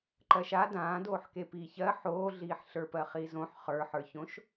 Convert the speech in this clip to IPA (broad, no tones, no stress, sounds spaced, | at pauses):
ǃ ɜ ʃ a d ãː d oː ħ k e p iː ç ɜ ħ oː ɮ iː ħ ɬ ə˞ p ɜ χ i z õ ħ χ ə˞ ħ ə˞ ç õ ʃ